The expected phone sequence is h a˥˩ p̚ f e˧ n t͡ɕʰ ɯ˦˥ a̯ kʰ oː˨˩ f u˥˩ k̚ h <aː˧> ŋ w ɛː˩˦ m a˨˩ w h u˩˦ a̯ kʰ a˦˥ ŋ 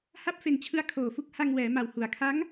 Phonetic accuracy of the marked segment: incorrect: a˧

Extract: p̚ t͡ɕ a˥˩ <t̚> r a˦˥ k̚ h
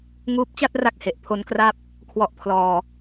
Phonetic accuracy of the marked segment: correct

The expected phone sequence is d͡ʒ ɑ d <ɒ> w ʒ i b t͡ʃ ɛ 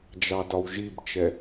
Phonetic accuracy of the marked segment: correct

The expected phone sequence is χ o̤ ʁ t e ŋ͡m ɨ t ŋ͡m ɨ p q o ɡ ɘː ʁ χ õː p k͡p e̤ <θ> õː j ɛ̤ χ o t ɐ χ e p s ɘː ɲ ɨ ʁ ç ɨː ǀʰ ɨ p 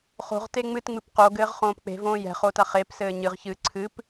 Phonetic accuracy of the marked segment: incorrect: v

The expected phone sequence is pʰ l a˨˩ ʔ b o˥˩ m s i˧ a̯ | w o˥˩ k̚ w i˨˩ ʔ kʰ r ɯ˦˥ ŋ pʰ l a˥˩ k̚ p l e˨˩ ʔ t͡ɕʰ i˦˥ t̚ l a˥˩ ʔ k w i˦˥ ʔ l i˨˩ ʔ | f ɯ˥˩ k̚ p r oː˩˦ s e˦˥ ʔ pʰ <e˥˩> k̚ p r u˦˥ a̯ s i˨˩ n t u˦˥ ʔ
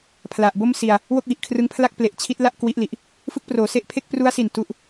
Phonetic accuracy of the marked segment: correct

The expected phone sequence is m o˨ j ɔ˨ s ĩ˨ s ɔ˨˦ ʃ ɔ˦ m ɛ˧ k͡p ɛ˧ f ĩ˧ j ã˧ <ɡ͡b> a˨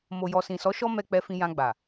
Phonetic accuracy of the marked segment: correct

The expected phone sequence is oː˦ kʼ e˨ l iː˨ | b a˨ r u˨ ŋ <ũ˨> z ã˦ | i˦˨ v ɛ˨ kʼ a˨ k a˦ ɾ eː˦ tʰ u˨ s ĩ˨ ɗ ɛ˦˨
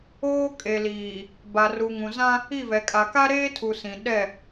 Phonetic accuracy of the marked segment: correct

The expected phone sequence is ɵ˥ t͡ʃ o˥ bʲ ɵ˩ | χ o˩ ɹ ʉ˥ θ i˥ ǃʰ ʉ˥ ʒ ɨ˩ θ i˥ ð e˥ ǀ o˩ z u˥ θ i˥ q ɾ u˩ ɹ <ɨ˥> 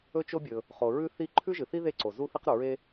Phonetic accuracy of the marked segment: incorrect: e˥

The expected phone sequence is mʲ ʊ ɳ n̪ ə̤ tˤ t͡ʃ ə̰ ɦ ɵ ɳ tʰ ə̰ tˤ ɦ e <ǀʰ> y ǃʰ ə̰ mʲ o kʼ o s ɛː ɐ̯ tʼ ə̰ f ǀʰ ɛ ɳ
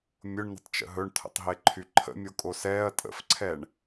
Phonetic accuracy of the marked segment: incorrect: ǃʰ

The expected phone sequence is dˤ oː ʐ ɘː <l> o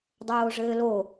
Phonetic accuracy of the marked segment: correct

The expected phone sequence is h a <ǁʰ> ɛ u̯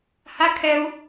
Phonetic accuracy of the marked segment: incorrect: kʰ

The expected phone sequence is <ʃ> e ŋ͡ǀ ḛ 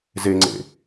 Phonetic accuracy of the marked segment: incorrect: z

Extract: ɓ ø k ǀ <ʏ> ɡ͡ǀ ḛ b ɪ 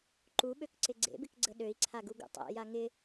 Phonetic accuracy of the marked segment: incorrect: ɪ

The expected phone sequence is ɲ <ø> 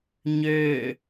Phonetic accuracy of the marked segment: correct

